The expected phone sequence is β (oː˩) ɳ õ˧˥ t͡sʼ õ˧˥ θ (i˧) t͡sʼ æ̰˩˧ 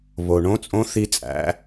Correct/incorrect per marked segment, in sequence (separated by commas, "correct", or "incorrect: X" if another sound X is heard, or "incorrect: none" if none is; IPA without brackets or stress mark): incorrect: o˩, correct